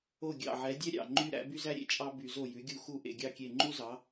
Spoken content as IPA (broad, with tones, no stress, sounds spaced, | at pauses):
o˥˩ ɡʲ ɑ̰˧˩ ʕ ɛ˩˥ dʲ ɛ˥ ɾʲ ɑ̰˧˩ ŋ͡ǃ y˥ ɾ æ̰˥ b y˥ z æ˥ ɾʲ ḛ˧˩ t͡ʃʼ ɑ˥ b y˧˩˧ z o˥˩ j ʉ˩˥ ɡʲ u˥˩ x u˥˩ ʔ ḛ˧˩ ɡʲ ɑ˥˩ kʲ e˧˩ ŋ͡ǃ u˥ z ɑ˩˥